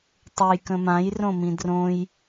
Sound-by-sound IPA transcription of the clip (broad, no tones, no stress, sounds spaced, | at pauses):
tˤ o j k ə̃ m ã j r õ m ĩ d r õ j